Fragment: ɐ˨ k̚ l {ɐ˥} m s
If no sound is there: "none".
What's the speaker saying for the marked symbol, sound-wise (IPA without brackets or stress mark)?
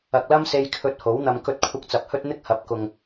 ɐ˥